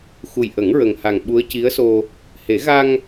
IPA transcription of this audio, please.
xu˨˩jʔə˨˩˦ŋɹə˨˩ŋha˨˩ŋ ɓu˧˥ə̯ci˧˥ə̯so˧ | he˨˩˦ɣa˧ŋ

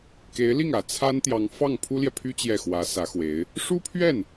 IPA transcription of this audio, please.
ke˧˥ɪ̯ li˥˩ŋä˨˩ t͡sʰa˥nt̪jɑ˧˥ŋfɑ˥˩ŋ pʰu˥ljɛ˨pʰy˥ t͡ɕjɛ˥˩xwä˧˥sä˧˥xwe˧˥ɪ̯ | ʂu˥pʰɥɛ˥˩n

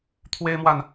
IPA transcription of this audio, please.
t̪ʰwe˦ɪ̯mwa˨n

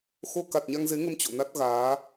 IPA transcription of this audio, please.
xo˧ ka˨˩t̚ɲa˧ŋze˨˦ŋə˧m t͡ɕo̰˧˨ na˦˥t̚ ɣaː˨˦

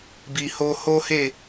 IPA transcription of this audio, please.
bi˨ho˧ ho˦he˦˨

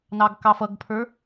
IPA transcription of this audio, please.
nɑɡkɑfʌɡpʰə˞

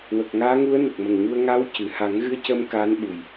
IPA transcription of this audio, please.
wə˨˩k̚ŋaː˧˥ŋu˧˥ə̯ nə˨˩k̚mə˨˩ŋɲu˧ə̯ ŋa˧˥wcɨ˨˩˨ ha˨˩˦ŋɣɨ˧ə̯cə˧m kaː˧˥nɓu˨˩j

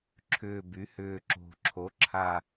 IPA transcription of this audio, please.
ǁʰʏː˨˩by˩˧hʏː˨˩ ǁo̤˨˩ ǁʰo˩˧ǁʰa˨˩

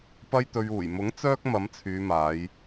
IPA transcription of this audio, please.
pɐ˧jt̪ɵ˨ɥuː˨˩jmʊ˨˥ŋ t͡sœː˥k̚ mɐ˨˥mt͡sʰyː˨˧maː˨˧j

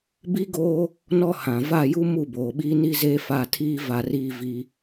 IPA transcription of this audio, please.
bi˦ɡoː˦ | nɔ˦hã˨ va˦˨ju˦ mu˦˨boː˨ɓiː˦ ni˦zeː˦fa˦˨tʰiː˦ va˦riː˦vi˦

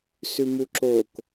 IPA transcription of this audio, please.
sʉmuǁok

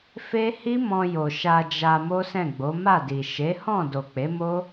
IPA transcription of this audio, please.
fe˦ hi˦mɔ̃˧jo˨ ʃa˧d͡ʒa˧ mo˦sɛ̃˦˨ɡ͡bo˨˦ ma˦˨di˨ ʃe˨˦hɔ̃˦˨ do˨k͡pe˨˦mo˦

